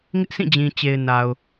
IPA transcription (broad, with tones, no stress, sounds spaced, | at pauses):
ŋ ɪ˦ ʔ s ĩ˦˨ d͡ʑ ĩ˨ t͡ɕ e˨ ɪ̯ n a˨ ʊ̯